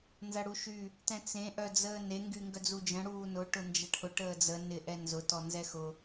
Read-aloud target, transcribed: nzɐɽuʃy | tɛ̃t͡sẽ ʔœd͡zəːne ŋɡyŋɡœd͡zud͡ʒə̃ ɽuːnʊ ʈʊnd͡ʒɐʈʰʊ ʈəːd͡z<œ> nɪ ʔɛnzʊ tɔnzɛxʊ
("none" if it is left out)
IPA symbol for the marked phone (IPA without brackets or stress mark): ə